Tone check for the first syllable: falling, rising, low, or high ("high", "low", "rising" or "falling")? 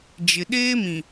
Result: low